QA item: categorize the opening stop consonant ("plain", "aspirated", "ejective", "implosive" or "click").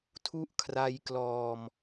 aspirated